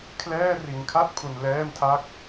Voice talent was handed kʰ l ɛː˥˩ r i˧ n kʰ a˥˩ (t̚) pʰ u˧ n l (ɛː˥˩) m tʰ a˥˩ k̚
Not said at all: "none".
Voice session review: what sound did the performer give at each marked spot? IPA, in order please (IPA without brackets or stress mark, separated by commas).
t̚, ɛː˥˩